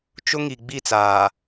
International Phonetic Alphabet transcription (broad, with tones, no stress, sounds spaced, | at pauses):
t͡ʃ ʊ˦ ŋ i˨ ɡ͡b i˦˨ t͡s aː˨